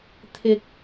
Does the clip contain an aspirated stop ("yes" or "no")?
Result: yes